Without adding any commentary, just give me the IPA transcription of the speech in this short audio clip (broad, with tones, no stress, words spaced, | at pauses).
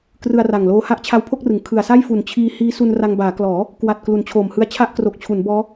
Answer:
krɯ˧a̯ra˨˩ŋloː˦˥ ha˦˥ʔt͡ɕʰa˦˥wpʰo˥˩k̚rɯ˩˦ŋ kʰɯ˨˩a̯sa˥˩jfu˨˩n t͡ɕʰiː˧ hiː˦˥su˧nra˧ŋbaː˩˦ klɔː˩˦ | kwa˨˩t̚ klu˩˦nt͡ɕʰoː˨˩mhɯ˧a̯t͡ɕʰa˥˩ʔ kro˨˩k̚t͡ɕʰu˩˦n bɔː˦˥